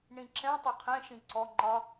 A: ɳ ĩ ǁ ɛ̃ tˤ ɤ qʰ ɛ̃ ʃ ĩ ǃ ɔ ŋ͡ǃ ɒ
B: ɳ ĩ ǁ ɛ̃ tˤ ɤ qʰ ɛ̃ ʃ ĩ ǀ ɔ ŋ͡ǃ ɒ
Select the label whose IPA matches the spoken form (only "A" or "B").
B